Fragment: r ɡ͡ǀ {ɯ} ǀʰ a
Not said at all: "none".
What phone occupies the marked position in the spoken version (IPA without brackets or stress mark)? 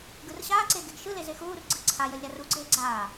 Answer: ɯ